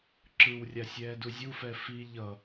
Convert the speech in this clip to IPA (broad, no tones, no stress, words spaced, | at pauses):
ǁɯw rʲasʲɛːduzʲu fɛfi ʎʌ